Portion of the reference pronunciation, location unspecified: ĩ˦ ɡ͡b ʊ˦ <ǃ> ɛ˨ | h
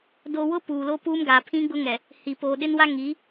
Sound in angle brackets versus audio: incorrect: ŋ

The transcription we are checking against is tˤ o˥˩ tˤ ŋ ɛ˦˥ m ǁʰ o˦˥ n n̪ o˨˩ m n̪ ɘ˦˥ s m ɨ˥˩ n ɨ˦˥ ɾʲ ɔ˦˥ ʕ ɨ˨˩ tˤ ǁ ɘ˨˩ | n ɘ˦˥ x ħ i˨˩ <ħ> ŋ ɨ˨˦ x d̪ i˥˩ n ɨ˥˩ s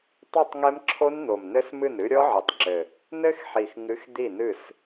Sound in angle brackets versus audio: incorrect: x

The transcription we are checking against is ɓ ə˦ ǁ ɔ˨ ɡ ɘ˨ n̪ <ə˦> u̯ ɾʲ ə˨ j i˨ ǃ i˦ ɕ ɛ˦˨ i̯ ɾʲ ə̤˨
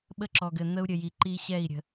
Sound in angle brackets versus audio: correct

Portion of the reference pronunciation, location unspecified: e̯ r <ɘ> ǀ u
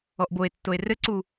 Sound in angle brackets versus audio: correct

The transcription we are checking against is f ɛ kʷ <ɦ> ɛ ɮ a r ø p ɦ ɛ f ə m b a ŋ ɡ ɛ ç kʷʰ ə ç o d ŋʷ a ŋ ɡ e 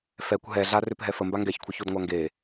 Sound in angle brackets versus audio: correct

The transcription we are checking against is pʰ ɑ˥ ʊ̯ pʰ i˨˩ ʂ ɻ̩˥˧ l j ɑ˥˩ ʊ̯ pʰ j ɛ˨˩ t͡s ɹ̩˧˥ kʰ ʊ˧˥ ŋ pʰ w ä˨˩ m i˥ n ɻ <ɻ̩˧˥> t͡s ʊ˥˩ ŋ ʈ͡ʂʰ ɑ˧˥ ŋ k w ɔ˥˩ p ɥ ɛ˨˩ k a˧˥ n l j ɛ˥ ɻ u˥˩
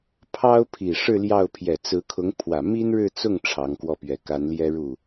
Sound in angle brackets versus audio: incorrect: ɻ̩˥˧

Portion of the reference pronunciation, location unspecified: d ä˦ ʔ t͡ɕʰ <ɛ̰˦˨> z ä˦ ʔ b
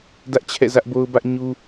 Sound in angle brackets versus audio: correct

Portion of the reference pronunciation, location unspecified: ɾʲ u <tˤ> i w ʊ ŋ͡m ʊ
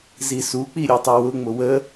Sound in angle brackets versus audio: correct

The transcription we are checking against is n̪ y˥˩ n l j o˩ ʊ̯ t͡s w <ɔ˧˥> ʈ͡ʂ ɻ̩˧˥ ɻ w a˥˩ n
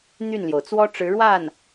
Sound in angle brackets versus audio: incorrect: ɔ˥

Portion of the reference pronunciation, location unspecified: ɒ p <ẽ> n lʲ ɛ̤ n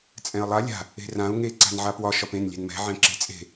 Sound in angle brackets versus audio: correct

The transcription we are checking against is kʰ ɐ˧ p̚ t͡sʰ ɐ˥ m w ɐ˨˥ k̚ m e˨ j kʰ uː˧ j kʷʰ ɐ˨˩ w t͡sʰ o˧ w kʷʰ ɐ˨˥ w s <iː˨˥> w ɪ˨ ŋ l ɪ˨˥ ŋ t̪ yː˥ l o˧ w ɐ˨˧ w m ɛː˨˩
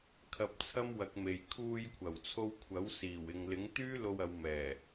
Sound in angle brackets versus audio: incorrect: iː˨˩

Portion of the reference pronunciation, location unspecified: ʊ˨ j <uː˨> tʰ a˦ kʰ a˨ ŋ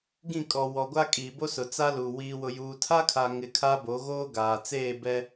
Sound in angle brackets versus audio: correct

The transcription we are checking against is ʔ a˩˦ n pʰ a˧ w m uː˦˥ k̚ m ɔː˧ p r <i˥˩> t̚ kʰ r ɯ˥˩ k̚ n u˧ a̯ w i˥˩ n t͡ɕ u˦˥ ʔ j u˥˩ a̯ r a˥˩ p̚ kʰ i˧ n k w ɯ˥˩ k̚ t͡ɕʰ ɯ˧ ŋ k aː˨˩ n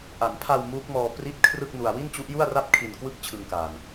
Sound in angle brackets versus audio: correct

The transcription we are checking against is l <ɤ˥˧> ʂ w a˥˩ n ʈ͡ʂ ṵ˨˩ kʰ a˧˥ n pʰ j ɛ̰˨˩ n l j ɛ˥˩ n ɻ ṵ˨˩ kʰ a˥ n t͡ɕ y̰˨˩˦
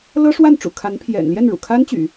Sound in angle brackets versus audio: incorrect: ɤ˥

